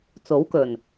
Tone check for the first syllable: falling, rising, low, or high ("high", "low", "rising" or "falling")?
rising